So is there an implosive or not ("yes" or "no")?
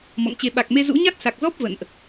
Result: yes